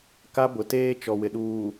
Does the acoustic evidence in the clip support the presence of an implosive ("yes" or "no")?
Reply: yes